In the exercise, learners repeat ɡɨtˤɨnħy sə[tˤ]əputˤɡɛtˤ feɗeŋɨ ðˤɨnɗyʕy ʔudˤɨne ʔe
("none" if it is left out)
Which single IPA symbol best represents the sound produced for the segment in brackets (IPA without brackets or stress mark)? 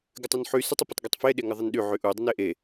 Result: tˤ